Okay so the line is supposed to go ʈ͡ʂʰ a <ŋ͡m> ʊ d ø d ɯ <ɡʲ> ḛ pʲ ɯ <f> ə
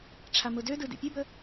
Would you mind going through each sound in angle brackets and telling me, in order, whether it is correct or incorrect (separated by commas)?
incorrect, incorrect, incorrect